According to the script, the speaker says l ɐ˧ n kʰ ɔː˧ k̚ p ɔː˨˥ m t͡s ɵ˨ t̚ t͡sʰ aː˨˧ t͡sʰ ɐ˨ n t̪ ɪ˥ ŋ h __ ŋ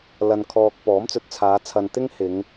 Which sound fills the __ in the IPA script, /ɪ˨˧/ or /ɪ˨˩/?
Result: ɪ˨˧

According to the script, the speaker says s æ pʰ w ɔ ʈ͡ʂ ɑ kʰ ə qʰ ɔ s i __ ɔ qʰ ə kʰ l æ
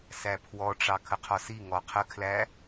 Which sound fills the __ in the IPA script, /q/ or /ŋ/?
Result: ŋ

